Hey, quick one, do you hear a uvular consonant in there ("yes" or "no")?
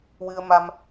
no